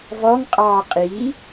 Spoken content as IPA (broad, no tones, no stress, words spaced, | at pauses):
vɔŋqʼɑː qʼi